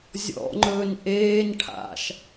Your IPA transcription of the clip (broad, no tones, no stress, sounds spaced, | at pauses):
zʲ ɔ̰ ŋ͡ǃ ɵː n ʔ eː n ʈʰ a̰ ʃ